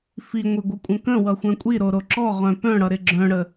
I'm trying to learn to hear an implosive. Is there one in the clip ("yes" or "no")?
no